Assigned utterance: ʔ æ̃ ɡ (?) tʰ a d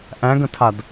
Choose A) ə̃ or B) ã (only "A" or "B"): A